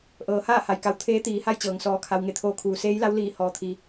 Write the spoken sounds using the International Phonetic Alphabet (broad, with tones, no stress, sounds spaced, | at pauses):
ʔ ɤː˩˧ h aː˥˨ h a˩ j k a˧˩ w t̪ʰ eː˧˥ t̪ iː˩˧ h a˥˨ j t͡ɕ ɤː˩ ŋ s ɔː˧ kʰ a˧ w ŋ e˧˩ t̪ʰ oː˧ kʰ uː˩˧ s eː˧˥ j l a˧˥ w l iː˧˩ h ɔː˩ t̪ʰ i˩˧